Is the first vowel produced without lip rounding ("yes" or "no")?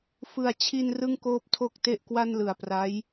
yes